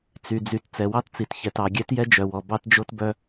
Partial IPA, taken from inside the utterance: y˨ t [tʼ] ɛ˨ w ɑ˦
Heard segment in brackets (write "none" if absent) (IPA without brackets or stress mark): t͡s